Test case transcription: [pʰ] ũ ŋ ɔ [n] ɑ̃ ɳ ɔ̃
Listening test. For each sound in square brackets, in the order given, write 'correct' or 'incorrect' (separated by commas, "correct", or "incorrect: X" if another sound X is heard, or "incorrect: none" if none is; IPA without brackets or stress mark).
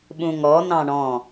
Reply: incorrect: ɓ, correct